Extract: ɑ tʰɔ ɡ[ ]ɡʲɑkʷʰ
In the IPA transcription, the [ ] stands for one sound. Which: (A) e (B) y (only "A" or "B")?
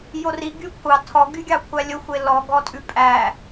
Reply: B